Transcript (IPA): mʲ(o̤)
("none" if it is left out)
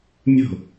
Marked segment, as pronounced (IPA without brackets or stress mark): o̤